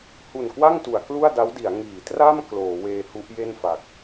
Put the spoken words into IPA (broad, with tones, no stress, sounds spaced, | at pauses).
h u˨˩ n k w a˥˩ ŋ t u˩˦ a̯ k l u˥˩ a̯ d a˦˥ w d i˩˦ a̯ ŋ iː˩˦ t r a˥˩ m k l oː˩˦ w eː˧ h u˦˥ ʔ j e˥˩ n f a˨˩ k̚